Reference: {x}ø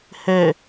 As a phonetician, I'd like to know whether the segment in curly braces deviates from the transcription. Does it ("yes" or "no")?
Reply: yes